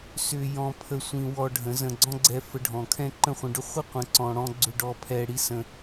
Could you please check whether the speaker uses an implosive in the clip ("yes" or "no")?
no